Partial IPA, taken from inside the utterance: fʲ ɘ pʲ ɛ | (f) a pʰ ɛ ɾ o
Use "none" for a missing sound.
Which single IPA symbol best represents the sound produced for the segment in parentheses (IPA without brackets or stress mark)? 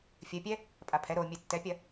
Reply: pʼ